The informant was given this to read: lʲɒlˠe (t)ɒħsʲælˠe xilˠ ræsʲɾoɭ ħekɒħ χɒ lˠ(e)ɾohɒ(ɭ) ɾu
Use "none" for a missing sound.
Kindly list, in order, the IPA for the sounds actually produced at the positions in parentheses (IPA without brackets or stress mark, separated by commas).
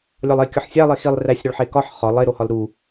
kʲ, e, l